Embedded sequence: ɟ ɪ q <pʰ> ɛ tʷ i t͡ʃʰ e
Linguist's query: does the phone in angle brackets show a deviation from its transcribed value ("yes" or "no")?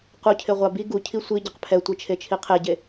no